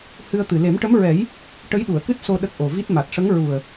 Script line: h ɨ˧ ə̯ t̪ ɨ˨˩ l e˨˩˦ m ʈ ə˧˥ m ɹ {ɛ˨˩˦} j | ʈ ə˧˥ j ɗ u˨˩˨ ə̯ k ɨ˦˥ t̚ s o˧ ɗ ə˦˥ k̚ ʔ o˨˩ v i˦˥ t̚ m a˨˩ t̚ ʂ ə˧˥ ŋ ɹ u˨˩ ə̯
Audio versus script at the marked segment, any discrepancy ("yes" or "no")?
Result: no